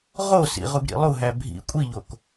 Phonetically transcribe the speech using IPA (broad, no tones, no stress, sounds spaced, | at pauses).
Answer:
ʁ o s ḭ ʁ u ɡ ɾ ḭ lˠ u ɦ æ bʱ ḭ kʷʼ i ʎ o k